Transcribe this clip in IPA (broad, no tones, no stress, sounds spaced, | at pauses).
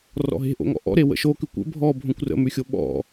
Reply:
r ɔ̰ ɦ e̤ ʔ o̰ ŋ ɔ̰ ʔ ɔ̰ ɾ e w ə̰ ʃ o k ʉ kʷ ə̰ bʱ ɔ bʱ õ kʷ r ə̰ m ʉ xʲ o ɓ ɔ̰